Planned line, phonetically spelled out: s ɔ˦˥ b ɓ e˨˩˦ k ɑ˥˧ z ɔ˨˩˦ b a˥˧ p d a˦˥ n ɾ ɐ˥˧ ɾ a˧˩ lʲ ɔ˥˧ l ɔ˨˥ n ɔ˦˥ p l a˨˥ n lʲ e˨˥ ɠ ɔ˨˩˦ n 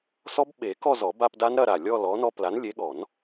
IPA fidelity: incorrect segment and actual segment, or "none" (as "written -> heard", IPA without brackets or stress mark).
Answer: ɑ˥˧ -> ɔ˥˧